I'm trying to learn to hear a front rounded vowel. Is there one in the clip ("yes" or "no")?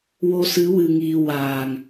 no